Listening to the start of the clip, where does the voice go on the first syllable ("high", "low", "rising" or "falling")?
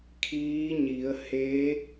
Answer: rising